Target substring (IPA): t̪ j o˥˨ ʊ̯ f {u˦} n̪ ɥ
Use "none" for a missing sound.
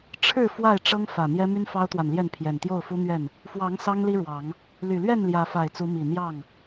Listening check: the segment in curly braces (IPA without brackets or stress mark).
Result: u˦